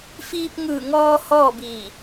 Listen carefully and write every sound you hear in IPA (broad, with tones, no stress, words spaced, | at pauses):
fiː˧p̚ŋɯː˧˩ŋɔː˧ hɔː˥˨biː˧˩